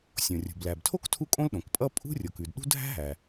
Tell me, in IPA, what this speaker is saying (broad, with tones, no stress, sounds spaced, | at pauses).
sʲ õ˩ rʲ ṳ˩ b l æ˩ b tʰ o˥ k tʰ u˥ kʼ õ˥ l ɗ õ˩ k pʼ ʌ˥ pʼ ṳ˥ rʲ o˩ k ʉ˩ d ɗ ṳ˥ dʱ æ̤˥ ɦ æ˩